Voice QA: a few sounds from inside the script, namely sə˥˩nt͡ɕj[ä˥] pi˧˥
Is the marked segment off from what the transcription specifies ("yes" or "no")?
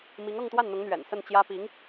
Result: no